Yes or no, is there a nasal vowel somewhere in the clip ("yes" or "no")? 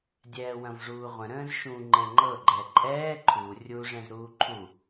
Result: yes